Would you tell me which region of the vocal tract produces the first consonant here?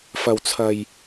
lips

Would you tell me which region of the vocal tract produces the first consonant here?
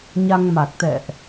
palate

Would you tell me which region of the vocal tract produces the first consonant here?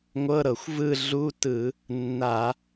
velum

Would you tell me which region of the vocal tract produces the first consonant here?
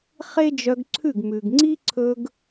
uvula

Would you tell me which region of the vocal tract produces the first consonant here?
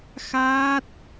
velum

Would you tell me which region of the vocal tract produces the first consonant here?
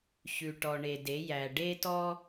palate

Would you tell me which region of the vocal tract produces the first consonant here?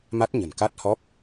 lips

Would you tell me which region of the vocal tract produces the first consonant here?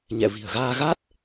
palate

